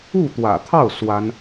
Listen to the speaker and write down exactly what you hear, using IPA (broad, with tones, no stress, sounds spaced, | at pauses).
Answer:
u˥˩ t̪ w ä̰˨˩ t̪ʰ ɑ˥˩ ʊ̯ s w a˥ n